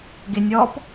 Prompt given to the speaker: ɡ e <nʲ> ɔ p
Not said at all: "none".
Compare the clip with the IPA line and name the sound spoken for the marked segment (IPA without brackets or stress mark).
nʲ